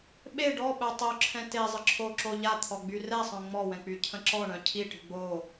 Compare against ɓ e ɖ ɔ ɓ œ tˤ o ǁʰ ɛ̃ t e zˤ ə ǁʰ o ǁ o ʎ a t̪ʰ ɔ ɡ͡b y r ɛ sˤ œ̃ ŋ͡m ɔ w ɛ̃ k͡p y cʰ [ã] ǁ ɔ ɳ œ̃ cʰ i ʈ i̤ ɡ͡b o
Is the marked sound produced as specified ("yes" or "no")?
no